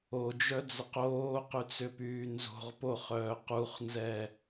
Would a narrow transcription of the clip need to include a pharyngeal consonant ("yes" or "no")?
no